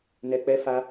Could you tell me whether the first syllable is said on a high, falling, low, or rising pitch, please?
low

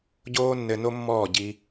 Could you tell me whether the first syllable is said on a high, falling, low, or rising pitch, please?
high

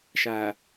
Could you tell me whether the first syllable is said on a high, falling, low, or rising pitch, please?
low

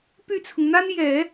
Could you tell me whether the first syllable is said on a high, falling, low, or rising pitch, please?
falling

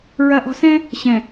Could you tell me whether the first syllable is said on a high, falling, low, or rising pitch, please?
low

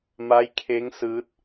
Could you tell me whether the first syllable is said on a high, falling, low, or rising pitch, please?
rising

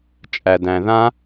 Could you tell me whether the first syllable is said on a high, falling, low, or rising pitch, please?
low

